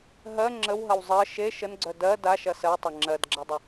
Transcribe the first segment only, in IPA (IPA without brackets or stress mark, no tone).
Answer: ɦ